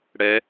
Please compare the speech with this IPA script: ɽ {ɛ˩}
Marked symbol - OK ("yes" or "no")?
no